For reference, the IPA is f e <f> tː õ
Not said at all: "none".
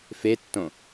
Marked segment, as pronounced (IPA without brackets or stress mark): none